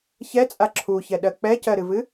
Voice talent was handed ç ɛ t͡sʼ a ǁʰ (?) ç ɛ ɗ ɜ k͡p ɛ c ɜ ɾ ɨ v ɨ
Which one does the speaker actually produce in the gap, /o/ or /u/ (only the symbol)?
u